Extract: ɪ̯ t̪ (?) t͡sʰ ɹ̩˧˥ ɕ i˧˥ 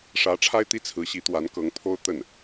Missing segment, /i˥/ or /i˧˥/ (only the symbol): i˥